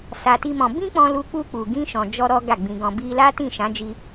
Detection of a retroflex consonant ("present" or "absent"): absent